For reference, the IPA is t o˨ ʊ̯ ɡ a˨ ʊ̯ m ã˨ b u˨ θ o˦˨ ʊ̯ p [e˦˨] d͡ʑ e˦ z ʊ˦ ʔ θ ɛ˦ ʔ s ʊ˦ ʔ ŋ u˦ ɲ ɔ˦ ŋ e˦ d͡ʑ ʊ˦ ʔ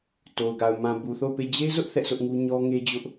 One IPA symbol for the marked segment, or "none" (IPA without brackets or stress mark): e˦˨